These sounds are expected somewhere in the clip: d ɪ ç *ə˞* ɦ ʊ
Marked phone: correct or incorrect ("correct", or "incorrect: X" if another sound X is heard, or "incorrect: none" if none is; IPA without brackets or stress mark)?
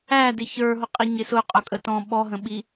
correct